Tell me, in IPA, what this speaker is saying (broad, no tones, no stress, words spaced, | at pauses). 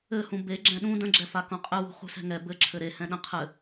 ɘhũ be ɡ͡ǁɛ̃ɗũ də̃ɡ͡ǁɛfa kõqʼɘwṳ χṳsɛ̤ŋɛ bɘǁʰɘ ɾe hɛ̃ɗə̃ qʰɘ